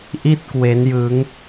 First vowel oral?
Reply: yes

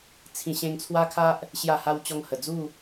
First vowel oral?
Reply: no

